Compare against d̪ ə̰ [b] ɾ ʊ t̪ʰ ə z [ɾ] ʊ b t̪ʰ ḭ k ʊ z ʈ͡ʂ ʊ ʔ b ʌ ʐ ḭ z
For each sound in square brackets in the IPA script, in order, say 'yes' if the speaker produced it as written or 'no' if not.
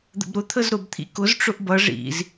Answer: yes, yes

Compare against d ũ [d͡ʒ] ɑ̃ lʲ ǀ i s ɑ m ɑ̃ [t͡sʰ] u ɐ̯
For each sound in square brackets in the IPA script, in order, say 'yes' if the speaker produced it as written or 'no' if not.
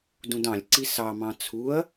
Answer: no, yes

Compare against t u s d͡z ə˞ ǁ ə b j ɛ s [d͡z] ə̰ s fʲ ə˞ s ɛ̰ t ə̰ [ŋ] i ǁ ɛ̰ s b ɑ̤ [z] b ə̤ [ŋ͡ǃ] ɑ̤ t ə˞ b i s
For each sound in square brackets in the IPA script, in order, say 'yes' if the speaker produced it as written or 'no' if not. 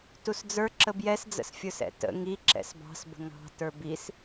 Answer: yes, yes, no, no

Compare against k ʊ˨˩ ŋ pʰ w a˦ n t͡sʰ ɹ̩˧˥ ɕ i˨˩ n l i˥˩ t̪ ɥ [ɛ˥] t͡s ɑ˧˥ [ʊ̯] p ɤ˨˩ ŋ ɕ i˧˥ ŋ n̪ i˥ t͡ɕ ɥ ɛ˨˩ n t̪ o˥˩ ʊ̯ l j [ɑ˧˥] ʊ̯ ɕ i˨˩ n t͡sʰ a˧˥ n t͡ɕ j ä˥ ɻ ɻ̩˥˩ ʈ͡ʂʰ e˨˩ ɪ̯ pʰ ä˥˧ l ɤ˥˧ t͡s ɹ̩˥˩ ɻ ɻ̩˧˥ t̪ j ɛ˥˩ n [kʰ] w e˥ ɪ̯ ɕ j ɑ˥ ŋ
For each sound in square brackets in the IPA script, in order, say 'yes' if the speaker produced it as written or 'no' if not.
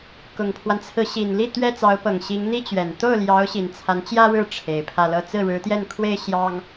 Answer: yes, yes, yes, yes

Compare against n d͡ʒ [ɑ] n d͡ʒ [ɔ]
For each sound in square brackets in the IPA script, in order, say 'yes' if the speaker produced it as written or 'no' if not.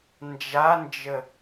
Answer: no, no

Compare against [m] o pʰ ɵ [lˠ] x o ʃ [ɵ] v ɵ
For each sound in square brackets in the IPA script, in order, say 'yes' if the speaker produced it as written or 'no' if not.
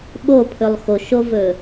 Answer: no, yes, no

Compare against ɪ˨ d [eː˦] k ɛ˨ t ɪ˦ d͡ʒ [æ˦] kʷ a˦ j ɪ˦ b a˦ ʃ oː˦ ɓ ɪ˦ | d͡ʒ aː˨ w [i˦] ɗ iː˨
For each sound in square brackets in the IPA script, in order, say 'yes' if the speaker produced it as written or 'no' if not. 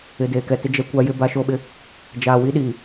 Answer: no, no, yes

